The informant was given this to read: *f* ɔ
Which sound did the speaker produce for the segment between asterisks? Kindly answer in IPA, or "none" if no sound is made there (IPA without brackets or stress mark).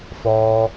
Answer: f